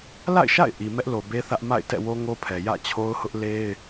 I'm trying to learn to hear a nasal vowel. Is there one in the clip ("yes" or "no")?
no